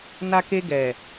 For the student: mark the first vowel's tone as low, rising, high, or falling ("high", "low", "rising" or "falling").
low